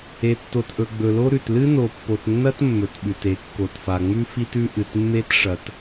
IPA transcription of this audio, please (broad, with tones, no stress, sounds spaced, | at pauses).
e˨ tː o˨ t ʔ ɵ˨ ɡ͡b ɵ˨ l o˦ ɾ ʉ˨ t l ɨ˦ n o˨ pː o˨ t nː ɐ˦ t mː ɵ˨ t ɓ ʉ˨ t e˨˦ kː o˨ t f a˨ ŋ͡m ʉ˦ f i˦ t ʉ˦ ʔ ɨ˨ t mː e˦ t ʂ ɐ˨ t